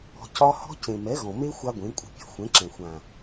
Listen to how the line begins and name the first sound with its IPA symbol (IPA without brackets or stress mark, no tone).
ɔ̤